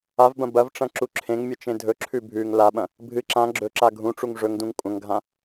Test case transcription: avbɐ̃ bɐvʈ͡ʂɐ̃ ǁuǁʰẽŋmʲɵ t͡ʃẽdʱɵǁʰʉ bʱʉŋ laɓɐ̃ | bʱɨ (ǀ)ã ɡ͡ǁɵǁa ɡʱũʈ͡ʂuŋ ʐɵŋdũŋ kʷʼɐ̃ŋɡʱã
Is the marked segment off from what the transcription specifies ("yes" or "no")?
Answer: yes